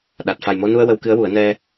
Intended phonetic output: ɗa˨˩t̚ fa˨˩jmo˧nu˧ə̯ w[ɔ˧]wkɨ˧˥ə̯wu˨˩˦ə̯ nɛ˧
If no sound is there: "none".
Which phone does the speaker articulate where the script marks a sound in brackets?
ə˧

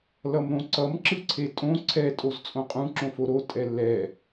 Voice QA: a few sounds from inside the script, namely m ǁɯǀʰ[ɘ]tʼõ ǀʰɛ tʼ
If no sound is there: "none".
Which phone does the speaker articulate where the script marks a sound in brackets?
e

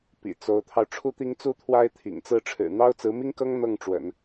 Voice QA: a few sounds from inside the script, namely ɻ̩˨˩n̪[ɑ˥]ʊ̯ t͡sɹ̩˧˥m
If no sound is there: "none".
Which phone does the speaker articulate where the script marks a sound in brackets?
ɑ˥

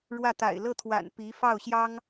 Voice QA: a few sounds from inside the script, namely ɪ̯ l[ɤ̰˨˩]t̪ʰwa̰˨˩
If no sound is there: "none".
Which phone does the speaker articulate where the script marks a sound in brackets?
ɤ˥˩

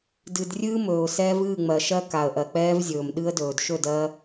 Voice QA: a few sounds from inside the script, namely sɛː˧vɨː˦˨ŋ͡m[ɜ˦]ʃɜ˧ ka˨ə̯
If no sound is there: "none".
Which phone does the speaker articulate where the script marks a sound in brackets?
ɜ˨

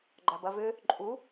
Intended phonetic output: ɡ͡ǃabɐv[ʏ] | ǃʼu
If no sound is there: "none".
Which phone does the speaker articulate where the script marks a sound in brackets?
ʏ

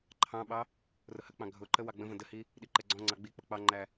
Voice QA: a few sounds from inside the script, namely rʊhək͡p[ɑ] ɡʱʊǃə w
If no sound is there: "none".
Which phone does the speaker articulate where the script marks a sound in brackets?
ɑ̃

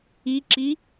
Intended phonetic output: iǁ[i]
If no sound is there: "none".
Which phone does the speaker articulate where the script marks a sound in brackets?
i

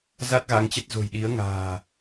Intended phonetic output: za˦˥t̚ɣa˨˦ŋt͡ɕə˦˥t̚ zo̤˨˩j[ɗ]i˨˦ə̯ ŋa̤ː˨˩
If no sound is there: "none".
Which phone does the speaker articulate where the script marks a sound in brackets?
ɗ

